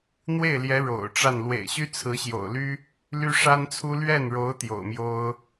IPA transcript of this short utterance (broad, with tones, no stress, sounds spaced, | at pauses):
n̪ w e˥˩ ɪ̯ l j ɛ˧˥ ɻ o̰˨˩ ʊ̯ ʈ͡ʂ a˥˩ n l w ḛ˨˩ ɪ̯ ɕ y˥ t͡sʰ ɹ̩˧˥ ɕ j o̰˨˩ ʊ̯ l y˥ | l y˥ ʂ a˥ n t͡sʰ u˥ l ɥ ɛ˥˩ n ɻ o˧˥ ʊ̯ t̪ j o̰˨˩ ʊ̯ m j o˥ ʊ̯